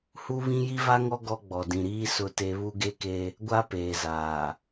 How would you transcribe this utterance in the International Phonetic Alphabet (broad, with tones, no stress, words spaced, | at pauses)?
hu˦βĩ˦ ji˦va˦ŋɔ˦ ɡɔ˦ɡ͡bɔ˨ dĩ˨ɾiː˦ sʊ˦te˦ βu˦ɡe˦ke˦ | ɡʷa˦peː˨zaː˨